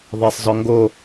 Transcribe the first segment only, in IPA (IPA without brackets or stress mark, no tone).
ðˤ